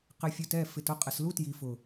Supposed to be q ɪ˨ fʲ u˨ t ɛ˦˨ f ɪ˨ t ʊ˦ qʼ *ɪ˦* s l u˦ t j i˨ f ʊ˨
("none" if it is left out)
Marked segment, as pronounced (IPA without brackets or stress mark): ɪ˨